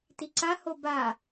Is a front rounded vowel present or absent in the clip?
absent